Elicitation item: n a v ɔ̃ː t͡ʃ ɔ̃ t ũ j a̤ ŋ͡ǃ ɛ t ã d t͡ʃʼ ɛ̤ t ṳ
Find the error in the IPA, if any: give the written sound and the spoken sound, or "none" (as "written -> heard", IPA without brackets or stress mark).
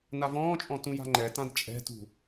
t͡ʃ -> t͡ʃʼ